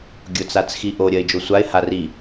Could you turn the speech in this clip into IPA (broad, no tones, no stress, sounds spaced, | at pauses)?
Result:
ɡʲ ʊ t͡s a t͡s x i ʔ o ɾʲ ɐ ɪ̯ d͡ʒ o sʷ a ɪ̯ h a r i